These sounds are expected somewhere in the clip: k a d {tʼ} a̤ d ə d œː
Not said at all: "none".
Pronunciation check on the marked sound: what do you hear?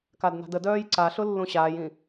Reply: n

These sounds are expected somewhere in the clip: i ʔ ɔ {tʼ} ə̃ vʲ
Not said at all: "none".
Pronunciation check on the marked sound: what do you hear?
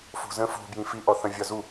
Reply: θ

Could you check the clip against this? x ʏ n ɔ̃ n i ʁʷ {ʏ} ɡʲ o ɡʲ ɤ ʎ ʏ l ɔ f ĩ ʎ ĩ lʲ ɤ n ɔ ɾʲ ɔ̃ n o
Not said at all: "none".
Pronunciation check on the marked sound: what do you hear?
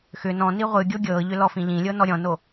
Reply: ɨ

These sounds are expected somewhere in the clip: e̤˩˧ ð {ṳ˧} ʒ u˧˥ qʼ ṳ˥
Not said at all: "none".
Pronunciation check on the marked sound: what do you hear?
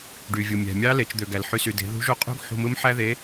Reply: ṳ˧˥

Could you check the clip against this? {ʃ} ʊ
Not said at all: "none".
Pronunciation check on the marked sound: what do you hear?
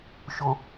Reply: ʃ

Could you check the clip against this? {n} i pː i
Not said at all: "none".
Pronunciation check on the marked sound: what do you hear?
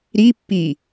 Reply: ɾ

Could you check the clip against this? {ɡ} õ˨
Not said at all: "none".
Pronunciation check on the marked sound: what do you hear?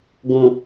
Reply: ɡ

